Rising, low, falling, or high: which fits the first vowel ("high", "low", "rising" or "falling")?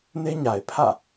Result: high